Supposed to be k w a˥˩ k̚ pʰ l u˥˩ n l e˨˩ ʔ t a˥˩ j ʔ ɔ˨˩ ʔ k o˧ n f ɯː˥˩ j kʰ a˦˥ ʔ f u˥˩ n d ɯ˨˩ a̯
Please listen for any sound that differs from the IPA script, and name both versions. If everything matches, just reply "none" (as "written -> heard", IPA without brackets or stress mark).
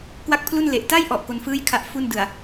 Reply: none